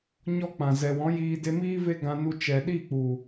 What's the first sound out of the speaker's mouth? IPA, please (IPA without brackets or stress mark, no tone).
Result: ɲ